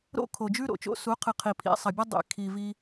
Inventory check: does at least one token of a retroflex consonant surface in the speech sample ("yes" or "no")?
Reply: no